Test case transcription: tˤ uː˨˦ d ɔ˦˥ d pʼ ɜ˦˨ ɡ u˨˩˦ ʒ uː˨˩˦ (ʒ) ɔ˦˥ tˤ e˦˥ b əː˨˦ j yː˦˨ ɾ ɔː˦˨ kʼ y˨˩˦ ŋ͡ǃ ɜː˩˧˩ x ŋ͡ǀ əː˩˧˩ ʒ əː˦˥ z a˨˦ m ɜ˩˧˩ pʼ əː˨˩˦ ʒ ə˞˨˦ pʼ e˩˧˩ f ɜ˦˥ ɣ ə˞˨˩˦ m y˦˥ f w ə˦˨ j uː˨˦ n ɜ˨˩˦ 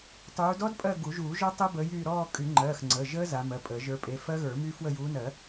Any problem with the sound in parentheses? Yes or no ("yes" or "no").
no